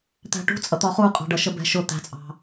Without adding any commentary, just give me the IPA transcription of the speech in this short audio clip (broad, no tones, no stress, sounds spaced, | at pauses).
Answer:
t̪ æ̤ ʈ ṳ t͡sʼ ʌ t̪ ɒ χ u qʼ ɑ̤ ɖ ʌ ʃ ə b ɛ̤ ʃ ʊ t̪ æ̤ t͡sʼ ɑ̤